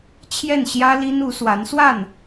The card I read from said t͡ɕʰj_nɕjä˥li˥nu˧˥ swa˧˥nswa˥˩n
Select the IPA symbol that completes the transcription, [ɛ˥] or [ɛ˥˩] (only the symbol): ɛ˥˩